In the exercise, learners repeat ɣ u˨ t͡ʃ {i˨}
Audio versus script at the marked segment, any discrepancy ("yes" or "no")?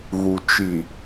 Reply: no